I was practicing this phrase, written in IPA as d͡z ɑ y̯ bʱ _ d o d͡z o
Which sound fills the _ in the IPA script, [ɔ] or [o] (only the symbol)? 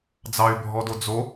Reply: ɔ